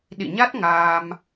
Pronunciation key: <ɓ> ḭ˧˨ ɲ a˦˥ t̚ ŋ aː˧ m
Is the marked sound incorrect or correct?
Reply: incorrect